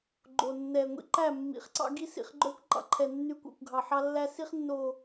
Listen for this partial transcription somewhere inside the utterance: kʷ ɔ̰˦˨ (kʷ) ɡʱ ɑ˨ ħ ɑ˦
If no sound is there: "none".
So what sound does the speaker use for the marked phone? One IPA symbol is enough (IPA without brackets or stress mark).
kʷ